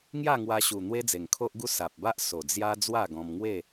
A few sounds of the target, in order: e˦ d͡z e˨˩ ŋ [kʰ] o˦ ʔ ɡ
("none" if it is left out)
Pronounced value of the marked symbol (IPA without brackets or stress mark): kʰ